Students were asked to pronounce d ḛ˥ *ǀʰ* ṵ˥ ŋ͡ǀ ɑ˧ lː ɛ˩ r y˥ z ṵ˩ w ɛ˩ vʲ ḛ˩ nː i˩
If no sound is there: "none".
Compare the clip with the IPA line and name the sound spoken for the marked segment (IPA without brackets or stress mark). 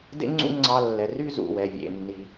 ŋ͡ǀ